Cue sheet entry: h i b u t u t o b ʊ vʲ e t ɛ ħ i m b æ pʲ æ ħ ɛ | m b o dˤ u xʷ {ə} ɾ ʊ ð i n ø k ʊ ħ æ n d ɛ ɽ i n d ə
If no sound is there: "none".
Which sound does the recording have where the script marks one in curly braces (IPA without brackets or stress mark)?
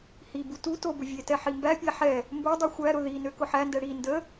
æ